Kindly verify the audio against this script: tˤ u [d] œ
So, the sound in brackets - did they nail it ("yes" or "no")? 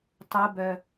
no